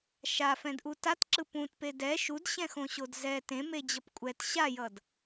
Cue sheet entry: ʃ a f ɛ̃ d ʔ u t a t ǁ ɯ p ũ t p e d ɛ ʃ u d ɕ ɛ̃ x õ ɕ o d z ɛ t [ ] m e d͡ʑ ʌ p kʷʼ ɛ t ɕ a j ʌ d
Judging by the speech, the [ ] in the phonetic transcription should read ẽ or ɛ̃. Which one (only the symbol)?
ẽ